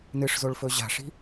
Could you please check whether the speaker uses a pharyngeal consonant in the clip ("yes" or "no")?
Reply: no